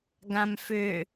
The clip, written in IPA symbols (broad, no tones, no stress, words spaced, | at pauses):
ɡãmfʏ